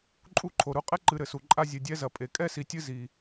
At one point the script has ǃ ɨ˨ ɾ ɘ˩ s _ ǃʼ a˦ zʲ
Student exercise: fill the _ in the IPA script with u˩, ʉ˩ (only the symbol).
u˩